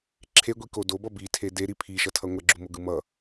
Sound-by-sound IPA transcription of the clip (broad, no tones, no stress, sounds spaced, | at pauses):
ǁʰ e ɡʷ i k o d o b ʌ b i tʰ e d e ɾ i pʰ i ʃ ʌ tʰ ʌ ŋʷ ɛ ɡ͡ǁ u m o ɡ ɯ m ʌ